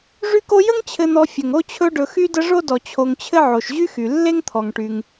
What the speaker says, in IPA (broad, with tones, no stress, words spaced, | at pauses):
ʐy˦ko˦ jə˥ŋt͡ɕʰɘ˨n̪ɔ˨ fʲə˩ŋ o˥t͡ɕʰɵ˦ɖɵ˨xy˥ də˦ʐo˥dɔ˨ t͡ɕʰo˨ŋt͡ɕʰɘ˦ʕo˩ʃ ʑy˥xy˩ lːe˥ŋt̪ʰɔ˩ŋʈy˩ŋ